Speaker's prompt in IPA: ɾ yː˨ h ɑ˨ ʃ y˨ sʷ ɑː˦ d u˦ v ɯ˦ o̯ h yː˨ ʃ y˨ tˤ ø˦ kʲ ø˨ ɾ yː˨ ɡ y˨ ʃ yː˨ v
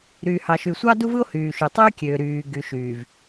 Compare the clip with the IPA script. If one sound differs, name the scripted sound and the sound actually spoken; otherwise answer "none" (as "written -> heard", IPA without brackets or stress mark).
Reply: ɑː˦ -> ɑ˦